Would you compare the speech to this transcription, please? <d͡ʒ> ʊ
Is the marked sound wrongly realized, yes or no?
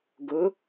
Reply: yes